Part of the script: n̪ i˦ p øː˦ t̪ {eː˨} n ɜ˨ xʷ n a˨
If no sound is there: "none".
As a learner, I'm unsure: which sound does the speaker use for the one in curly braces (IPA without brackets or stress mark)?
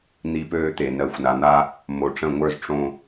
e˨